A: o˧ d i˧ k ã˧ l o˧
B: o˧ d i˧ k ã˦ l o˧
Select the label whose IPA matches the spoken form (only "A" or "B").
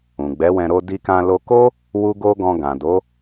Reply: A